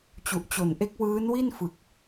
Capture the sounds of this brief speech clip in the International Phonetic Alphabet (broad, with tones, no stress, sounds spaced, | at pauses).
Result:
t͡ɕ u˨˩ ʔ t͡ɕ o˨˩ n ʔ e˦˥ k̚ w ɯː˦˥ n w i˥˩ n f ɯ˨˩ k̚